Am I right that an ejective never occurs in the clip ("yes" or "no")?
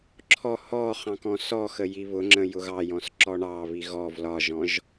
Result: yes